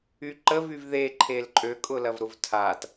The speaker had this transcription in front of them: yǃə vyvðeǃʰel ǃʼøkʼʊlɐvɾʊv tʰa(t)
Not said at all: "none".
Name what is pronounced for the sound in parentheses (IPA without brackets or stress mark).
t